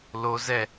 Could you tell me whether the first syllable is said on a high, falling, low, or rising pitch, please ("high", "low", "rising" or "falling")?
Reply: high